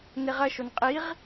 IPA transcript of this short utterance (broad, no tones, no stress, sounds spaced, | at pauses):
n e ʁ ɐ ʃ o n qʼ i ʁ